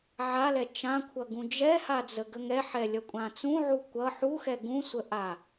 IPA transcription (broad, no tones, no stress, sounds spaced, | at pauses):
ʕ a l ɛ t͡ʃ ã kʷʰ ʌ ɡ ũ d͡ʒ ɛ h a d͡z ə ɡ ə ŋ ɛ ħ ɛ lʲ ʌ kʷʼ ã t͡s ũ ʕ u kʷ ʌ ħ u x ɛ ɡ ũ sʷ ə ʔ a